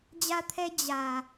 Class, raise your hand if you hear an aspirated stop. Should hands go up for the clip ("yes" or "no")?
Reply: yes